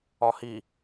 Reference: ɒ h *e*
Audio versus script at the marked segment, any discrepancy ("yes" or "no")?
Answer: yes